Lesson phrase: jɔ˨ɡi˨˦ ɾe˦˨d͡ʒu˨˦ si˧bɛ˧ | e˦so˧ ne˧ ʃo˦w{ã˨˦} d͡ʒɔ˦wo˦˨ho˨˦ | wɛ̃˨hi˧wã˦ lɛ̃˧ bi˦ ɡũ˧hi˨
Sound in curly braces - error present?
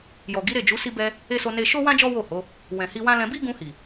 yes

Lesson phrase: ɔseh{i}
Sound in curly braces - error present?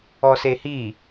no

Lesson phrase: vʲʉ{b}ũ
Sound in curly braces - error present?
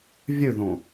yes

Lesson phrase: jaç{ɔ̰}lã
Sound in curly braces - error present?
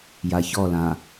yes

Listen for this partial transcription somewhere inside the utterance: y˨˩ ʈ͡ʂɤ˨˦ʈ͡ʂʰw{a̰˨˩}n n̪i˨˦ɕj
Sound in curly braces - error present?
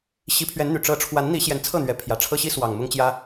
yes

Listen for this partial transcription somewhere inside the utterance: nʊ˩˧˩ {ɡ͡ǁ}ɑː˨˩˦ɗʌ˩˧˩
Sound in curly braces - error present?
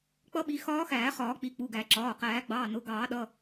yes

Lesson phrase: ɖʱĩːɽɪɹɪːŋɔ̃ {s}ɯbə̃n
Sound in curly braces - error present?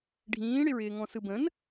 no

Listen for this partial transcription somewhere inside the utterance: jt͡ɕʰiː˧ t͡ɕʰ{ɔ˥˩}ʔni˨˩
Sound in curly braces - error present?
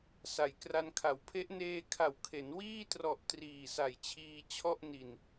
no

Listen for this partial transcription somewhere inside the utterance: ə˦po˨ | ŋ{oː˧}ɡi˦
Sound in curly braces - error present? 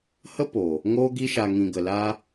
yes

